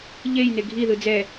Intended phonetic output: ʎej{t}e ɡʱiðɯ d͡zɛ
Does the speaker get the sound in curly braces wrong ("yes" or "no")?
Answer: yes